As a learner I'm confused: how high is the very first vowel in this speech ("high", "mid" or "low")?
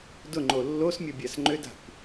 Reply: high